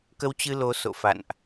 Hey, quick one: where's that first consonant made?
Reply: velum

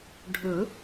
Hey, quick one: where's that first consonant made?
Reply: retroflex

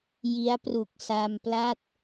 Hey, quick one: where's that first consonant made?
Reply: palate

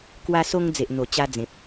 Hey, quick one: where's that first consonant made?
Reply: velum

